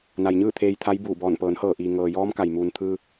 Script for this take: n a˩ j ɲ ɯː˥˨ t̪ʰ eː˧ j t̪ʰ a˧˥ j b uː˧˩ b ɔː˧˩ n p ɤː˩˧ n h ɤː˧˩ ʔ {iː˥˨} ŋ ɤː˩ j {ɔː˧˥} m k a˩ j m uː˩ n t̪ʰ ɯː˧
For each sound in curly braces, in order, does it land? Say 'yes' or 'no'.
no, yes

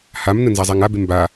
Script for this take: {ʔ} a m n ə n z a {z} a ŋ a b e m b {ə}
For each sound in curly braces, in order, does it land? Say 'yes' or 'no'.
no, no, no

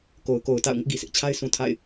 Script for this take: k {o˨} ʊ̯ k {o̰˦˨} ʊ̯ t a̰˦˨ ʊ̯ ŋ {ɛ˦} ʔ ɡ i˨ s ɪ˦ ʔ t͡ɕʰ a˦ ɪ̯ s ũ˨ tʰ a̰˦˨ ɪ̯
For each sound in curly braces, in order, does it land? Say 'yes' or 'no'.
yes, no, no

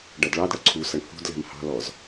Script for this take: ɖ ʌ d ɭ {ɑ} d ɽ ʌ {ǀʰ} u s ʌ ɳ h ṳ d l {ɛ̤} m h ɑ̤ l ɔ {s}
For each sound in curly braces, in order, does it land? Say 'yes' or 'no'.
yes, yes, yes, no

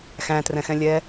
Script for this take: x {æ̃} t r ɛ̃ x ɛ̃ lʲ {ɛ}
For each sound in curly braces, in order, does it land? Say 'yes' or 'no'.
yes, yes

